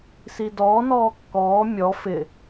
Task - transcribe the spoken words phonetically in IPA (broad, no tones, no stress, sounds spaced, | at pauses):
s i d ɔː n ɔː kː ɔː mʲ ɔ f ɪ